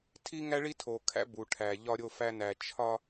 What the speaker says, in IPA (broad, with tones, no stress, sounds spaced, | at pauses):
tʰ i˦ ŋ æ˦ ɭ i˦ tʰ o˨ kʰ æ̰˦ b u˨ ʈʰ æ˨ ʎ ɒ˦ ɾʲ o˦ f æ˦ n æ˨ t͡ʃʰ ɒ˦